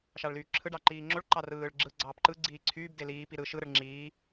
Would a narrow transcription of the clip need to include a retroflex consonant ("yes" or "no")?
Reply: yes